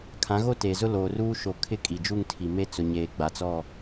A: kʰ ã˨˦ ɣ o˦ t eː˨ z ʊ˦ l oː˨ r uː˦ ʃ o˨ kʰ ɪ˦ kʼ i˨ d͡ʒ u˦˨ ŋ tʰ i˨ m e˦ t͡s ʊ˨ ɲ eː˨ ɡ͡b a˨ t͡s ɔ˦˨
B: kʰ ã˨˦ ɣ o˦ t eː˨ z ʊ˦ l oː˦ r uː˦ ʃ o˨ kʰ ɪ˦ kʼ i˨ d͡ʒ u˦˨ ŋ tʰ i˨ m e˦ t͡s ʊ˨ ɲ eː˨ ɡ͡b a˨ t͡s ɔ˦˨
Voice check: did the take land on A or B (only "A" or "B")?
A